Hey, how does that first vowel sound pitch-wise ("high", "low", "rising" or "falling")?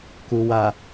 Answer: low